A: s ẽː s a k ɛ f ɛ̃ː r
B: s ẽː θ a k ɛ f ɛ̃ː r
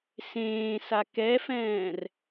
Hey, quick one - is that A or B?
A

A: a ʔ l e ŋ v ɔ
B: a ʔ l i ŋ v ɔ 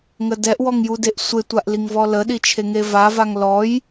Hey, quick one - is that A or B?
B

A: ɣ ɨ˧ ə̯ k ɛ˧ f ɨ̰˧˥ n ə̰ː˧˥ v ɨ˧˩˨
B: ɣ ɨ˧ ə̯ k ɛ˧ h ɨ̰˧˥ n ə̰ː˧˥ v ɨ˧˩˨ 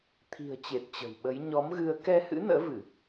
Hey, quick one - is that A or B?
B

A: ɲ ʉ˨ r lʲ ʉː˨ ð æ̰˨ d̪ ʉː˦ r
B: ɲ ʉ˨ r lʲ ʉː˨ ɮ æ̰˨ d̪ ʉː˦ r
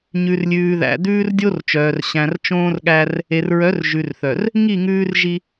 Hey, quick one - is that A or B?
A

